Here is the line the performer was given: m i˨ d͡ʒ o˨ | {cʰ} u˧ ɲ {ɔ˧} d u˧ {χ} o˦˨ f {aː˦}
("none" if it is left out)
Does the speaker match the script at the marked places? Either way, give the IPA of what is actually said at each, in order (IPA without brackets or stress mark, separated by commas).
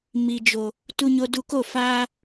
t, o˧, k, aː˦